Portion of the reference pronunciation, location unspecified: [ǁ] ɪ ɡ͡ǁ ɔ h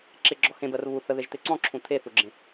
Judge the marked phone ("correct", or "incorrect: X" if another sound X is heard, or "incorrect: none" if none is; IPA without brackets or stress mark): correct